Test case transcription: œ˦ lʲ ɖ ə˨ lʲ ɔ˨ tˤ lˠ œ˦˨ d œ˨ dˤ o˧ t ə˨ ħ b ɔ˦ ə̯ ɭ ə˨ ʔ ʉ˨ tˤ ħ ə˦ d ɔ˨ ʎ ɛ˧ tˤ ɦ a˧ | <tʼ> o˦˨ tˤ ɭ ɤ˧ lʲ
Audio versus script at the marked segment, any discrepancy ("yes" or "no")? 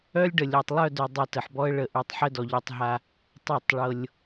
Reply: yes